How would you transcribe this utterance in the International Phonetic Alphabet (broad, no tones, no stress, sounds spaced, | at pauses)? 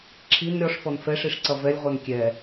ǁʰ i n ɾʲ ɔ ʂ f ɔ n f ɛ ʂ i ʂ ǀ ʌ v ɛ lʲ ʁʷ ɛ n kʲ ɛ